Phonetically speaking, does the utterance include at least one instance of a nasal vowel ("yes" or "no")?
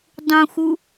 yes